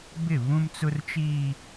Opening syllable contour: falling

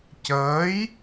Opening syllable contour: rising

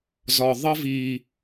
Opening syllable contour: low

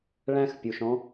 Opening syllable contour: high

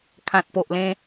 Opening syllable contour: low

